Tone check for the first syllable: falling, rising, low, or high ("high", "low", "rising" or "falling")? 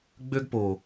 high